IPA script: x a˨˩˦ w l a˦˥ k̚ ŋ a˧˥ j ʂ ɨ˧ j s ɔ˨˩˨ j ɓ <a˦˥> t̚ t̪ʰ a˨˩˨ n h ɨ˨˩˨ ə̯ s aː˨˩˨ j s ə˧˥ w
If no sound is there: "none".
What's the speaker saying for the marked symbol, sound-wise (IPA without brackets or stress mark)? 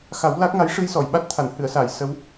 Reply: a˦˥